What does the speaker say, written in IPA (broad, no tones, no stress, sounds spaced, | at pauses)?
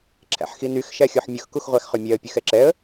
ǁʰ æ̰ ħ x i n y x ʃ æ xʲ ɔ ħ mʲ ɵ x k u x ʁʷ æ x χ ʉ mʲ ɛ ə̯ pʲ ʉ x ɛ ǁ ɛ ə̯